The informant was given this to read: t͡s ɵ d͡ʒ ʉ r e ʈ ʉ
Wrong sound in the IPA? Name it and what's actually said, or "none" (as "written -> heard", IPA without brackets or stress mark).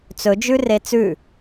ʈ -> t͡s